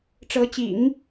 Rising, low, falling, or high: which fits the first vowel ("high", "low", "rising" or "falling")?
rising